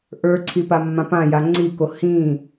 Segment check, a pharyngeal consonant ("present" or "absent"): absent